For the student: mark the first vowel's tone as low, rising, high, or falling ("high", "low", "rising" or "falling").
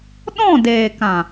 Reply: falling